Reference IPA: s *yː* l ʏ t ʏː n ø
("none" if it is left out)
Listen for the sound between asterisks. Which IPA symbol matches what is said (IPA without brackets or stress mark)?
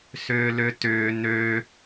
ʏː